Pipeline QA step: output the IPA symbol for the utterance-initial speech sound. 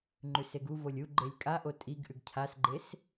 ŋ͡ǃ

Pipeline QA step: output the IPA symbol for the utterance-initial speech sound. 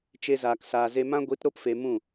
t͡ʃ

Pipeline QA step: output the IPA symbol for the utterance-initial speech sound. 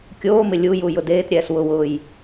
kʲ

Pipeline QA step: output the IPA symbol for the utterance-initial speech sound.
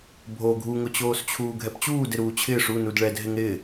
bʱ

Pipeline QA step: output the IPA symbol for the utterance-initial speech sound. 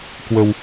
k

